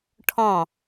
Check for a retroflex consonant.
present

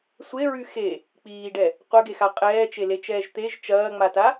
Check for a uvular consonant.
present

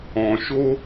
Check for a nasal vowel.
present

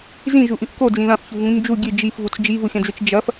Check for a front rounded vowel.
absent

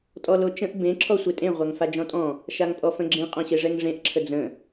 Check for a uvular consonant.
present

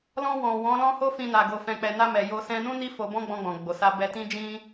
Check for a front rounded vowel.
absent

